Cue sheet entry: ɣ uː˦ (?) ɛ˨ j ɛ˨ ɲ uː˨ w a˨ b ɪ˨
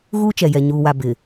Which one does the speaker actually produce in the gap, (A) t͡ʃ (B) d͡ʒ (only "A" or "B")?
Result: A